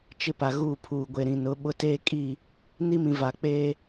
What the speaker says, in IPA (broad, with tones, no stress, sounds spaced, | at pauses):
t͡ʃ ɪ˦ p a˨ ɣ uː˦˨ pʰ uː˨ ɡʷ e˨ ɾ ĩ˨ n ʊ˨˦ ɓ ʊ˦ t eː˦ kʼ i˦˨ | n i˦ m ĩ˨ v a˨ k͡p eː˦